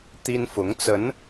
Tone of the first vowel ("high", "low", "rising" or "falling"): high